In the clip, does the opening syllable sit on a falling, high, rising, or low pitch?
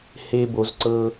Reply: high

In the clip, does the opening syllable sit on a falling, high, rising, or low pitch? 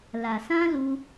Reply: low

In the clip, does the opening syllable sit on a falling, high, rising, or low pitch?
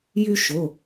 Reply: high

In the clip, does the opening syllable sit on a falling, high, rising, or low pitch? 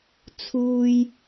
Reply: high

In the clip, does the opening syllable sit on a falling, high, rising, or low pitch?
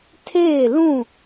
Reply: falling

